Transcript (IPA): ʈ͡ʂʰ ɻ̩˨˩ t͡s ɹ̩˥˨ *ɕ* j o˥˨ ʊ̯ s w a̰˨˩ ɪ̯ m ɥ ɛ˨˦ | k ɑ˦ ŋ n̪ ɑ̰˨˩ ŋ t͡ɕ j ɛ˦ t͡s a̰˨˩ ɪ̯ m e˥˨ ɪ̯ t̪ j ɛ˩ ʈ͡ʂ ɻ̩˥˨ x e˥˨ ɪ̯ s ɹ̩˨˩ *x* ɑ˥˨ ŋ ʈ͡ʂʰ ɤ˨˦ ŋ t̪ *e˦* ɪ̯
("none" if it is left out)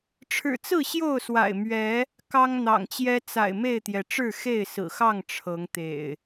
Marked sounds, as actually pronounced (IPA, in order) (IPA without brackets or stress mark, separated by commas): ɕ, x, ḛ˨˩